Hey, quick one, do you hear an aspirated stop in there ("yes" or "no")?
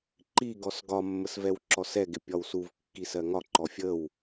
no